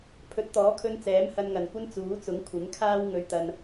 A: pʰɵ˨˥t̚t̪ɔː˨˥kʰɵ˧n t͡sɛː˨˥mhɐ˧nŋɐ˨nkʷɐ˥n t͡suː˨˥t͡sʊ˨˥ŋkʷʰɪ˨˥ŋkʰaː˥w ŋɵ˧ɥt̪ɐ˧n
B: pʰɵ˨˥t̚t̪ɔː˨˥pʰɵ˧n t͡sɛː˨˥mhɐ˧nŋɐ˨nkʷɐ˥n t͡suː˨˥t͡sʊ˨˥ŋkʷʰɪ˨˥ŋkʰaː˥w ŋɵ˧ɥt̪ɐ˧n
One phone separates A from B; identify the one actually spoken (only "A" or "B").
A